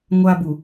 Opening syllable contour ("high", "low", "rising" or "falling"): high